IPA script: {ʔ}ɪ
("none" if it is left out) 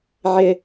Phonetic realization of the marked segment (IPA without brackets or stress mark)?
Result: ʕ